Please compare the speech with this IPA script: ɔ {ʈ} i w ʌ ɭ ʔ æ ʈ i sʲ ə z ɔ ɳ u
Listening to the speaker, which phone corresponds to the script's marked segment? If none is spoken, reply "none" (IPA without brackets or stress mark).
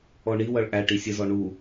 ɳ